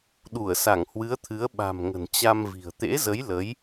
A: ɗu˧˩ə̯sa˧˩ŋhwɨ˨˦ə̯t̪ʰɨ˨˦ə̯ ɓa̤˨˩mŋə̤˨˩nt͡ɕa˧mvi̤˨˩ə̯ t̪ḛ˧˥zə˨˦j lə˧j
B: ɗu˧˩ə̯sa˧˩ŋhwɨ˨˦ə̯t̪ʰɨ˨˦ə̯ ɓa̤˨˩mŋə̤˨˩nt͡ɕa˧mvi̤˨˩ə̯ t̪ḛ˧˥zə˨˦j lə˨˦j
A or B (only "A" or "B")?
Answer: B